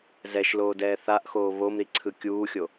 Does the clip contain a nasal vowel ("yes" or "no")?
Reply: no